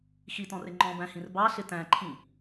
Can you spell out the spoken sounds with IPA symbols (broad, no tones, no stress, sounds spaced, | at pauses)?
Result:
x i t ɔ̃ r ɪ ŋ͡ǃ ɔ̃ b æ̃ h ĩ r b ɑ ɬ ɪ t æ̃ ǃʰ ĩ